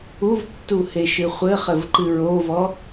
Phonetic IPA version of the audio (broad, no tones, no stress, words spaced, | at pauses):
uvtːu heʃɨχʷɘχɘv ǃɨɹovɔ